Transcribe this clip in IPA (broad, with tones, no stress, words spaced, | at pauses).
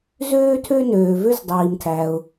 zøː˥ tʰø˥nøː˩vø˥z dˤiː˩mtʰæ˩ʊ̯